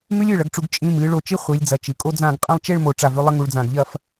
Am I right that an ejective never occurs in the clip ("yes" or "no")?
no